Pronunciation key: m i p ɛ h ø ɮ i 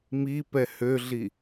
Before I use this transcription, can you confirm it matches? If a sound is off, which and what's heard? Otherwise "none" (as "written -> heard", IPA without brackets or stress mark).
none